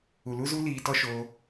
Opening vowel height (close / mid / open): close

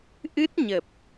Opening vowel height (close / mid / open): close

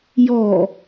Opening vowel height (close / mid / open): mid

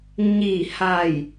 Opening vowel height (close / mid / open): close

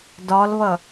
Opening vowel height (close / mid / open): open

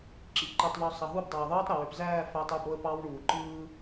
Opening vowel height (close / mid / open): close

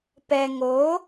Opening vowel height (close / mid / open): mid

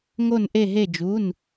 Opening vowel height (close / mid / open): mid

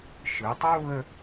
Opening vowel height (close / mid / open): close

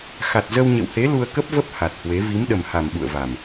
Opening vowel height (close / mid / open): open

